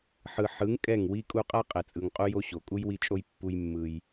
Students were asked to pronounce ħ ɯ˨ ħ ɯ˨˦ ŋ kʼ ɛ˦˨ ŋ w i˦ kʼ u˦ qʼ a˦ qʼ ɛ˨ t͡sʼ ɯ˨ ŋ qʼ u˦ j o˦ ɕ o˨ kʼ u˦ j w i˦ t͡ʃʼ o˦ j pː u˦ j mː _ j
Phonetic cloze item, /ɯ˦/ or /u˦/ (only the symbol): ɯ˦